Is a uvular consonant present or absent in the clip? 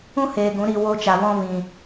absent